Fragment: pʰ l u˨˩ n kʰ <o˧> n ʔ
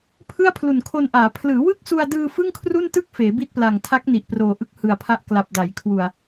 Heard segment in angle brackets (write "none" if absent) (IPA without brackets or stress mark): o˧